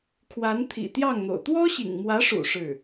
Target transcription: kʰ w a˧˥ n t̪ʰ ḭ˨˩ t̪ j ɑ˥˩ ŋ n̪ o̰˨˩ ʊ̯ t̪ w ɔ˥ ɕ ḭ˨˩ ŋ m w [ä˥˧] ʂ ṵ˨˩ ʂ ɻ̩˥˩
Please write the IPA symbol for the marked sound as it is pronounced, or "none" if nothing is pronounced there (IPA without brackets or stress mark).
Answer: ä˧˥